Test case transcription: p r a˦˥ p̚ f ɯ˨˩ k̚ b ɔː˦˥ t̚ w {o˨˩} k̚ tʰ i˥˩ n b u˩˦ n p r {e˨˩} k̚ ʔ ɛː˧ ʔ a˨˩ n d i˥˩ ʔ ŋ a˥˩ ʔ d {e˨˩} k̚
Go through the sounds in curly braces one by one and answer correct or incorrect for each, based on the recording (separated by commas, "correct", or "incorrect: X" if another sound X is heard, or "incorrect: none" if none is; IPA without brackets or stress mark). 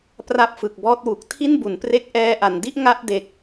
incorrect: u˨˩, incorrect: e˦˥, correct